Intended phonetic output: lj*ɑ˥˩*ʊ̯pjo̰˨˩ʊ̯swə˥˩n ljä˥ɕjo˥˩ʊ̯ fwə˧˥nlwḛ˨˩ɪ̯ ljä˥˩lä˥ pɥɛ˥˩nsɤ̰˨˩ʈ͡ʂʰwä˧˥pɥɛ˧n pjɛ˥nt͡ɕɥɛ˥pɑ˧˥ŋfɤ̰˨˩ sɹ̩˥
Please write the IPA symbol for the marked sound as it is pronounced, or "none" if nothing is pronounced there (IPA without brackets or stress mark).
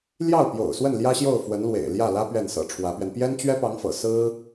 ɑ˥˩